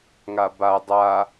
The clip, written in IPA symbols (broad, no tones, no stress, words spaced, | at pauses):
ŋaba dˤa